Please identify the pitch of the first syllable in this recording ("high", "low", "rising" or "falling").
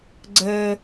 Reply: high